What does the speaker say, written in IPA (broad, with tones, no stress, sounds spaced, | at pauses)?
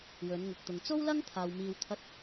w ɵ˨˧ n ŋ ʊ˨ k̚ t̪ ʊ˨ ŋ t͡s o˥ w l ɐ˥ ŋ t̪ʰ aː˨ w m iː˧ w t̪ʰ ɐ˥ t̚